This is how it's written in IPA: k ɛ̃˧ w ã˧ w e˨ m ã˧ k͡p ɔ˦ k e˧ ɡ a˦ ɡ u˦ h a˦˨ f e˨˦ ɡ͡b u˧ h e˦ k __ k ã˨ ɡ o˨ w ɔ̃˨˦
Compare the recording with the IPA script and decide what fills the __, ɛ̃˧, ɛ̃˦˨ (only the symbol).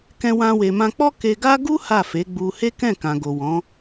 ɛ̃˦˨